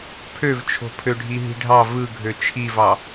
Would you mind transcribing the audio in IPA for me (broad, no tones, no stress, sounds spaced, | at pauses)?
pʰ ø v t͡ʃʰ o̤ pʰ ø ɖʱ i ɦ i̤ ɖʱ ɑ v ɯ ɡʱ ø t͡ʃʰ i v ɑ